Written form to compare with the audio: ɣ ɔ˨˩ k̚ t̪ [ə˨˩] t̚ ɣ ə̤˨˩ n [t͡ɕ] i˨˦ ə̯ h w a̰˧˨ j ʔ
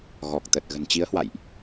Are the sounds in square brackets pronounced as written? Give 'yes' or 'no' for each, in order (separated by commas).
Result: yes, yes